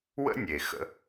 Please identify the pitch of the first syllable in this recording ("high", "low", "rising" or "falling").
high